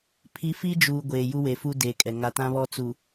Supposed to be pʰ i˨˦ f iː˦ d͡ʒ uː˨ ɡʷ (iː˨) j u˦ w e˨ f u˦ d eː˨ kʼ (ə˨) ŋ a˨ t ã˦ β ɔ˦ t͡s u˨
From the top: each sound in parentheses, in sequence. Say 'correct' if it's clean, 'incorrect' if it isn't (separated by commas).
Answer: incorrect, incorrect